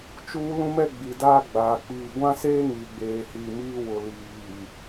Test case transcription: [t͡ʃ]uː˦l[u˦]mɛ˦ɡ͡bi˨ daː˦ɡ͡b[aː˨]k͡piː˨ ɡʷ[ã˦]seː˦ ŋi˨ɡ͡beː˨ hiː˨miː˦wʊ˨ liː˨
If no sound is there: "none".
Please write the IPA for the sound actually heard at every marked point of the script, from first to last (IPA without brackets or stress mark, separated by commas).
t͡ʃ, ũ˦, aː˨, ã˦